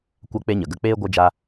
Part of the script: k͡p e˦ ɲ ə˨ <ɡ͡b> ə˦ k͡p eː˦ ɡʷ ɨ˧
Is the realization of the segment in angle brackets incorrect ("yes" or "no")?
yes